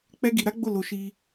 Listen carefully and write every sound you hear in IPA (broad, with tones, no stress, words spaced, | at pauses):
k͡pɛ˦ ɡi˧ɾa˦ɡ͡bo˦˨ lo˧ ʃi˧